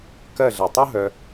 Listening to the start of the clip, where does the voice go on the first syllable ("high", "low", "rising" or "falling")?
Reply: falling